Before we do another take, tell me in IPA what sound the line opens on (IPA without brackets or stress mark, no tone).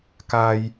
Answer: k